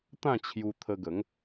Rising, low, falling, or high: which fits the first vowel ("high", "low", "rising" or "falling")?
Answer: falling